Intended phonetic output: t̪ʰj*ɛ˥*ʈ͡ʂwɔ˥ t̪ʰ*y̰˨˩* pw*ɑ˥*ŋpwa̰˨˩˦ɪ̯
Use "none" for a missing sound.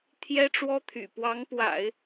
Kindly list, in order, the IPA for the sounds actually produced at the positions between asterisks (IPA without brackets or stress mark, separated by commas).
ɛ˥, y̰˨˩, ɑ˧˥